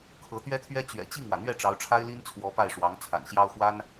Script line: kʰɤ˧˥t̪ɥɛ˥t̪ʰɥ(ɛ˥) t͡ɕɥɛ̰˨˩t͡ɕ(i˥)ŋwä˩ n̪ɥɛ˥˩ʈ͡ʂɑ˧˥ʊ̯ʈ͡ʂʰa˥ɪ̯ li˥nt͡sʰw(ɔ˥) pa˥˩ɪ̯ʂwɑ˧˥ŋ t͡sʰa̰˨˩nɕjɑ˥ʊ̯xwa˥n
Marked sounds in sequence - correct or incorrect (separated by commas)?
correct, incorrect, incorrect